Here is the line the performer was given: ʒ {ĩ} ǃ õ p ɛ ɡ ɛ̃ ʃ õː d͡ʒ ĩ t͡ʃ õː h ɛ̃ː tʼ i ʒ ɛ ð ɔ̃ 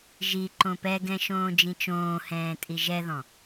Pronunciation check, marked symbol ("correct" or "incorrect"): incorrect